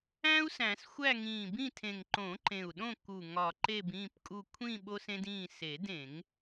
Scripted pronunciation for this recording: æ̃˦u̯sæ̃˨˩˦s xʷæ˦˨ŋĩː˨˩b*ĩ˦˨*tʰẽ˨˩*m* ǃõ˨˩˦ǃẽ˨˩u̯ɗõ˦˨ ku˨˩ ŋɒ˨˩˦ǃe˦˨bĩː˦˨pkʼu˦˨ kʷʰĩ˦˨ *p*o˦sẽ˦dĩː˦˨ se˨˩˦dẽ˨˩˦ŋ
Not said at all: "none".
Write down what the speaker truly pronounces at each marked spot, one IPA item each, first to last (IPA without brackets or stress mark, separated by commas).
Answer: ĩ˦˨, ŋ, ɓ